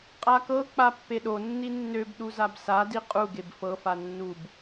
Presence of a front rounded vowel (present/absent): present